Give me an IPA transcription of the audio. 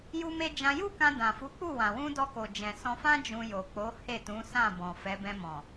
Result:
ju˦me˦ d͡ʒã˧ju˦kã˧ dã˨fu˨˦k͡pu˦˨ wã˨wũ˧ dɔ˧ko˨ d͡ʒɛ̃˨ sɔ̃˧fã˦ d͡ʒũ˧jo˨k͡po˨˦ he˦˨tũ˨˦sã˦˨ bɔ̃˨fɛ˨˦ bɛ̃˧mɔ̃˨

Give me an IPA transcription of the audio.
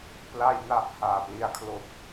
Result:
pla˧jna˨˩ʔ haː˨˩pli˧a̯kʰlo˦˥k̚

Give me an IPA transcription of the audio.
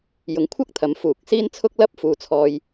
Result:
jʊ˨˥ŋkʷʰɐ˥k̚t̪ʰɐ˨˥m fuː˨k̚siː˥nt͡sʰʊ˥k̚ lɐ˥p̚ fuː˧t͡sʰɔː˧j

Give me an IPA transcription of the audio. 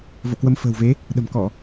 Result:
vo̰˧˨kwə˧m fə̤ː˨˩wve˨˦ | ɗə̤˨˩mkɔ˧˩˨

